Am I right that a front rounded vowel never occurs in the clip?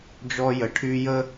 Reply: no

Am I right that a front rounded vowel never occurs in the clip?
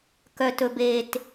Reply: no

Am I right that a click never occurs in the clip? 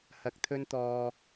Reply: yes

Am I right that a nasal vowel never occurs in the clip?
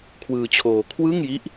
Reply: yes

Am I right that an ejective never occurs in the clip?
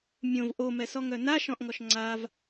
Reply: yes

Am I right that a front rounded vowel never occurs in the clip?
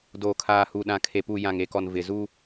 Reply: yes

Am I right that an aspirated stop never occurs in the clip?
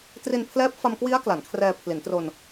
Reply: no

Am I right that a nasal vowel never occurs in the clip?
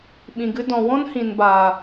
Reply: no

